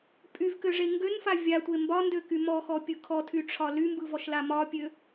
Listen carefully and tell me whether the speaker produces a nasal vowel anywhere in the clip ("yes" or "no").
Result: no